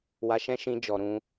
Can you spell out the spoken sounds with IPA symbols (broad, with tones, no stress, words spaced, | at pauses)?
wa˧ʃɛ̃˦ ʃĩ˧ d͡ʒɔ˨ɾũ˧